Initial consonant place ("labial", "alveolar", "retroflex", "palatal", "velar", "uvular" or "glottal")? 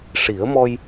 retroflex